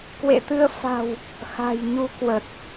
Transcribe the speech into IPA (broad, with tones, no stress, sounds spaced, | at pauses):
k w ḛ˧˨ t̪ ɨ˧ ə̯ f a̤˨˩ w | x a̤˨˩ j ɲ u˧ k w ə˨˩ t̚